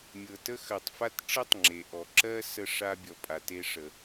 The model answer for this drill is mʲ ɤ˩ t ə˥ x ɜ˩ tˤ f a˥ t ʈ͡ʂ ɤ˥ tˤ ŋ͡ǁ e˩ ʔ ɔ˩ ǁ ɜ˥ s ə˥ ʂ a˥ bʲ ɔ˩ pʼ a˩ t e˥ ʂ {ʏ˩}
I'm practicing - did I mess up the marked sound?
yes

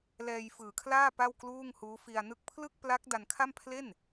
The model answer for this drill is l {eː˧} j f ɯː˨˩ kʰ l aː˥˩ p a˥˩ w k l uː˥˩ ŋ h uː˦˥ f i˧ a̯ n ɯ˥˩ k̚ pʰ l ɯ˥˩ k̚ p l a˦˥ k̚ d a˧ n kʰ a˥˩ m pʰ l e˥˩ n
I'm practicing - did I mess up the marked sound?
yes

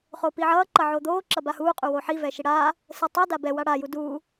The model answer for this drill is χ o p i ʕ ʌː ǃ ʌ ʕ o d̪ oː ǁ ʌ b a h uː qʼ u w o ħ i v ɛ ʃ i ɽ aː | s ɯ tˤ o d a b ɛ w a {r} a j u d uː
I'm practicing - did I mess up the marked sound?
yes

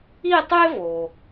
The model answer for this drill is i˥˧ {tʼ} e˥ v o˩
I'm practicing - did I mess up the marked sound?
yes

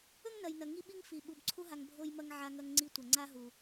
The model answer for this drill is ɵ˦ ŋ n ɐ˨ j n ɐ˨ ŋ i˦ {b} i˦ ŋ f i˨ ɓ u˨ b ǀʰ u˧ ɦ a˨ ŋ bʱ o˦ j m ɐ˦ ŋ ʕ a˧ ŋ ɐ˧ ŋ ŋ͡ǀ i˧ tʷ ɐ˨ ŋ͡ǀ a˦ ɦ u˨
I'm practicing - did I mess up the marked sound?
yes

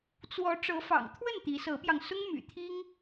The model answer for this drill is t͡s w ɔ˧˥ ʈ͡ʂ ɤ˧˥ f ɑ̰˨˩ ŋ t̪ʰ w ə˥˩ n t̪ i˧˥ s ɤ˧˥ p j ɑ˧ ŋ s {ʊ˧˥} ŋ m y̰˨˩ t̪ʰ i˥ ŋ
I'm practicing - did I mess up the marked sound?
yes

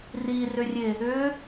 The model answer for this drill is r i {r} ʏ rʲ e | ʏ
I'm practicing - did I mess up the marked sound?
no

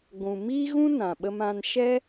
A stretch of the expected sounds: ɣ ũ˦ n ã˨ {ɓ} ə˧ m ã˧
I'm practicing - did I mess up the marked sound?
no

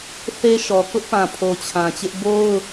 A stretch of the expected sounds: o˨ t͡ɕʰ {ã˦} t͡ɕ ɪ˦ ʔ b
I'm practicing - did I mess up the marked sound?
yes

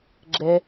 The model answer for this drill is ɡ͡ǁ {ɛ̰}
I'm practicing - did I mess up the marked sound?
yes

